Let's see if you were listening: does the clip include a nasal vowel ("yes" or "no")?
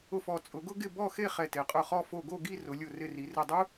no